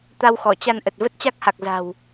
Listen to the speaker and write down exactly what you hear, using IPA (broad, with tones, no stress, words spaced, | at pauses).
t̪a˧wxɔ˧˩ t͡ɕa˧nʔə˨˩t̚ və˦˥t̚t͡ɕa˦˥k̚ha˨˩k̚ za̤˨˩w